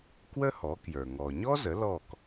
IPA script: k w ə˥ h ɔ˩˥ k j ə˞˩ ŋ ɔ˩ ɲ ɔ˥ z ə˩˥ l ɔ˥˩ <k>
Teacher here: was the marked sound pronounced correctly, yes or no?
yes